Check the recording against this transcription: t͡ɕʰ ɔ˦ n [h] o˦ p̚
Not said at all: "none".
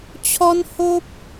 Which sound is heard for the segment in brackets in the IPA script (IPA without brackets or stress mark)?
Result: h